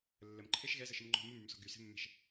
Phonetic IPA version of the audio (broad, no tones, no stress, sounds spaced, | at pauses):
lː ə m ǃʰ e ʃ ɣ ɛ z ə ʃ ə m ŋ͡ǃ ɔ̤ m u m y m s ɔ̤ ɡ y s e̤ mː ɛ̤ ʃ